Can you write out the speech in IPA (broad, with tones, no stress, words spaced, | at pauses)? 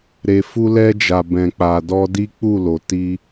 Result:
ɾe˨fu˧lɛ˧d͡ʒa˨ bɛ̃˨k͡pa˨dɔ˧di˦ k͡pu˦˨lo˨ti˧